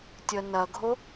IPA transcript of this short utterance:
tʲ ə n ɐ ɡʱ o

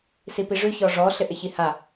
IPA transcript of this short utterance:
s i p i ʐ ʉ ç ɔ ʐ ɔ ɬ ɪ ʔ ɪ ç i h a

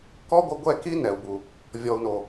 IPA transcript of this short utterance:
k ɔ˦ ɡʷ ə˧ ɡʷ ɛ˦˨ k i˦ n ɛ˨ u̯ b u˨ | vʲ ɔ˨ u̯ n o˨

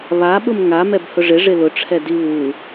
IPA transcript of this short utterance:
β a ɓ ʊ m ŋ a m ɛ b h ʊ ʐ ɪ ʐ ɪ l ʊ ʈ͡ʂʰ ɛ d i β u

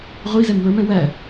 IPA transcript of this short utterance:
ʁʷ i z ɛ m w ə˞ m ɛ̃ w æ

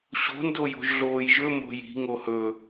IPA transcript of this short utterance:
ɕ o̤ n d o j o̤ ʒ ɮ oː j ʒ ɵ m o̤ j i̤ ŋ o h ɵ

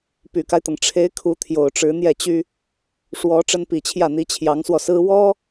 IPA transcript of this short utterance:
p y˨˩ k a˦ ɪ̯ t̪ ɤ˩ ŋ ʈ͡ʂʰ e˧˥ ɪ̯ kʰ u˧˥ t̪ʰ j o˨˩ ʊ̯ ʈ͡ʂ ɻ̩˧˥ n̪ j ɛ˥˩ t͡ɕ y˥ | ʂ w ɔ˧˥ ʈ͡ʂ ə˥ n p i˨˩ t͡ɕʰ j ä˥˩ n̪ i˧˥ t͡ɕʰ j ɑ˧˥ ŋ s w ɔ˧ s ɹ̩˥ w ɔ˥

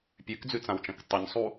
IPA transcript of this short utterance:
pʲ ʉ k d͡z ʉ t͡s ã w t͡ʃ ɐ̃ k tˤ ɨ ɲ sˤ u

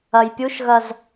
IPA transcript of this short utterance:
ɐ j pʲ u ʃ ɣ ɐ z

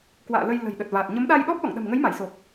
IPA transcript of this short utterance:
k w a̰ː˧˨ l ə˧ j l ə̤˨˩ j ɗ ə˨˩ t̚ v aː˨˩ t̚ ɲ ə˨˦ m ɗ a˧ j ɗ ɔ˦˥ p̚ ɗ ɔ̰˧˨ ŋ ɗ ə̤˨˩ m ŋ ə˨˦ j m a˧˩ j s o˨˩ k̚

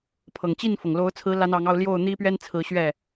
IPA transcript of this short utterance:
pʰ ɤ˨˩ ŋ t͡ɕ i˥˩ n f ɤ˩ ŋ l o˧˥ ʊ̯ t͡sʰ ɹ̩˧˥ l a˧˥ n ɑ˧˥ ŋ ɑ˥˧ ʊ̯ l j o˥˩ ʊ̯ n̪ i˥ p ɥ ɛ˥ n t͡sʰ ɹ̩˧˥ ɕ ɥ ɛ˥˩

